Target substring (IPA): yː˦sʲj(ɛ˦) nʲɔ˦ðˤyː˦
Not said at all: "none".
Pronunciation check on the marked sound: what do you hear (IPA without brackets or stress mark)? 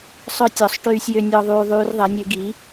ø˦